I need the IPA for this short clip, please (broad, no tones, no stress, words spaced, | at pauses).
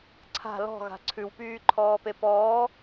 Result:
ǀʰa̤ lɔ̤ɣa̤ ǀʰʉwpyːǃʰɔːpe pɔː